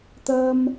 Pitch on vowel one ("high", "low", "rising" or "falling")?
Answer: high